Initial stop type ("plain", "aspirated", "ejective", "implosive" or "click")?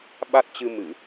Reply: implosive